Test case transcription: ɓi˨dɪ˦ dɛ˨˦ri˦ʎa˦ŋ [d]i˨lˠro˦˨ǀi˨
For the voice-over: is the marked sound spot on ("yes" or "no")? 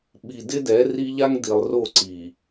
yes